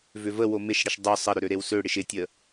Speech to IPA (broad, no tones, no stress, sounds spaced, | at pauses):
v ʏ v ə w o m ɪ ʃ ɽ ɪ ʃ dˤ ø sˤ ə ɾ ʏ ɾ ø ɾ e w s ø ɽ ɪ ʃ ɪ tʲ ə